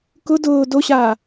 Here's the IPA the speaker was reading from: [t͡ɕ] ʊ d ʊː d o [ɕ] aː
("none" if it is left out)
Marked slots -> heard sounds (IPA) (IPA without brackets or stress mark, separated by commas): k, ɕ